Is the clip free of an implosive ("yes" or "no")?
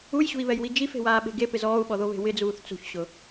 no